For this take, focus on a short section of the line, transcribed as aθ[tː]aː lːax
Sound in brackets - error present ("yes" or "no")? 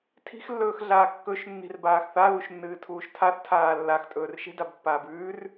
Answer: yes